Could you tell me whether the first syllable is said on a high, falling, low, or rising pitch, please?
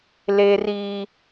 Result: high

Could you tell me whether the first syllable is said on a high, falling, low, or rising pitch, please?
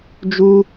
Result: high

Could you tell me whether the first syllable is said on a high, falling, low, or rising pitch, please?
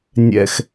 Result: low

